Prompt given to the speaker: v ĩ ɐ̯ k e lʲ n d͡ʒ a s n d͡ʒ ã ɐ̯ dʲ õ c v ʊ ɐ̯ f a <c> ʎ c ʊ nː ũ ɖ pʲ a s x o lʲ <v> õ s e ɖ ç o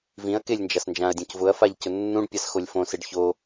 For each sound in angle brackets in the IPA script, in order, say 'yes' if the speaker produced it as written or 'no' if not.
no, no

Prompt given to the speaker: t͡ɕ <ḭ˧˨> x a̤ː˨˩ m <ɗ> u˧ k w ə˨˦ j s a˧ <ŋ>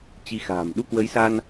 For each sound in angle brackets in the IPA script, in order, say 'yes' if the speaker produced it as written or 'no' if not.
no, yes, no

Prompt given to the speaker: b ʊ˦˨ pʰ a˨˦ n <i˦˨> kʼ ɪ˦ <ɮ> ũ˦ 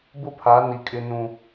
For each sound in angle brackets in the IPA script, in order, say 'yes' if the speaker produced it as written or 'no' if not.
no, no

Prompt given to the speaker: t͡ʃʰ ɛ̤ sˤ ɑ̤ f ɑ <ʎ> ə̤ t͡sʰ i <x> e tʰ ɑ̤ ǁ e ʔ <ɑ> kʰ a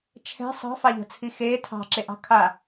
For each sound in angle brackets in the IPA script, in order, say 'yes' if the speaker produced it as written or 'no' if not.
yes, yes, no

